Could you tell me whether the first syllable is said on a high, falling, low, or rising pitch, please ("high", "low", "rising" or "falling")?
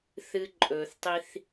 low